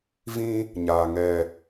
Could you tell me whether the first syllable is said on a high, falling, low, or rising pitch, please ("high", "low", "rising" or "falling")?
high